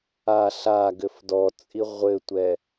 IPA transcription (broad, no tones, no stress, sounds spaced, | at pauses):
a ɬ a ɡ ɘ f d ɔ t͡sʼ i ʁʷ ɘ tʷ ɛ